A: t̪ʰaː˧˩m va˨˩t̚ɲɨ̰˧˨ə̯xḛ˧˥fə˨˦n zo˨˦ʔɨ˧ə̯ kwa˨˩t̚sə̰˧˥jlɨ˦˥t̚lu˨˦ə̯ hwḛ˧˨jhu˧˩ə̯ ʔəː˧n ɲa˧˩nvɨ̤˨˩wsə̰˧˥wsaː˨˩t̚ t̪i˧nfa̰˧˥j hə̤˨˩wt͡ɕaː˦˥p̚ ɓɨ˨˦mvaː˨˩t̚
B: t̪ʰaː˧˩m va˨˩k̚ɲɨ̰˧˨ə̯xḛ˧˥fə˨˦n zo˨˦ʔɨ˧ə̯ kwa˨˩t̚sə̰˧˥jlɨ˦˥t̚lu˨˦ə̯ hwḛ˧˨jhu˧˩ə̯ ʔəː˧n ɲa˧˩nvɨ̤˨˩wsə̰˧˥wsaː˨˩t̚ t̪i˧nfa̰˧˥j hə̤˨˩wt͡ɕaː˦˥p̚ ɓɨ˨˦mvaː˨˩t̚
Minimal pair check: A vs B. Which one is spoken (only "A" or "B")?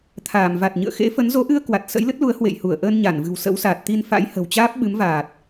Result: A